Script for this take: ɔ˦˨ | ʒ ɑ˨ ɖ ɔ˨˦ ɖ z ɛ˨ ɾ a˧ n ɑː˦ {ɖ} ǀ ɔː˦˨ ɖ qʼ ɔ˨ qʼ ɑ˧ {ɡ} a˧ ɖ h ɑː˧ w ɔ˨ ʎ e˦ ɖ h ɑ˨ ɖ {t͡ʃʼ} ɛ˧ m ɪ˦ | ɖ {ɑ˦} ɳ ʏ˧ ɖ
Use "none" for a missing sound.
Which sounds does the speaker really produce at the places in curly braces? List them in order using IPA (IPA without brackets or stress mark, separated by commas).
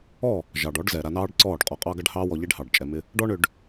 ɖ, ɡ, t͡ʃʼ, ɔ˦